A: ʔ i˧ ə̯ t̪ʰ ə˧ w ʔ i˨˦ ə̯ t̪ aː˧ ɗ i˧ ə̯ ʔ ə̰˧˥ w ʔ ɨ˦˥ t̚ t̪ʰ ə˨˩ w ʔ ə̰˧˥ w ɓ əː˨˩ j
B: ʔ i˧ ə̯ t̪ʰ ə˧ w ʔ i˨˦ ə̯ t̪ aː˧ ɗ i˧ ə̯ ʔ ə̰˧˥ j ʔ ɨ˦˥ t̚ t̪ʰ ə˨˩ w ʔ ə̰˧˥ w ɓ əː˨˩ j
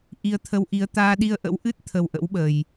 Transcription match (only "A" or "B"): A